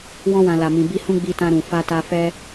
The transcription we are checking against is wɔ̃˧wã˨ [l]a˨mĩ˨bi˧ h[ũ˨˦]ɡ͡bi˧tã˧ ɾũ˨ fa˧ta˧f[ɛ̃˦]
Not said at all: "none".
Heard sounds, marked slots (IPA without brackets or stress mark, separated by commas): l, ũ˦, ɛ˦